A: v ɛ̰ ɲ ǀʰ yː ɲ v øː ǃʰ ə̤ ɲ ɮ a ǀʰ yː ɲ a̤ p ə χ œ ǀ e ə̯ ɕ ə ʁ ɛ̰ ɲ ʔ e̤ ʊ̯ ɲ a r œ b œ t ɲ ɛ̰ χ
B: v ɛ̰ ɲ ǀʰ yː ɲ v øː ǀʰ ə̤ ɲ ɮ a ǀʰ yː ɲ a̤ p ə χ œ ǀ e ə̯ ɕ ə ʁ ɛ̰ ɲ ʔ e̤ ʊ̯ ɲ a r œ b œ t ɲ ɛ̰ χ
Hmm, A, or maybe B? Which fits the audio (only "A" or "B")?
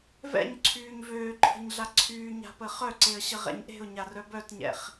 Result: A